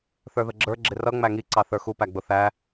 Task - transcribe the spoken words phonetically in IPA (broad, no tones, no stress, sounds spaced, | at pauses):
θ ə˞ ð ə ɡ͡ǁ ə˞ ɡ͡ǁ ɪ r ʌ ŋ͡m æ ŋ i ǀ ɑ θ ə˞ x u p æ ɡ͡b ʊ θ æ